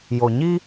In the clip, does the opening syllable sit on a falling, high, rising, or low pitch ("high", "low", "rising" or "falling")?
low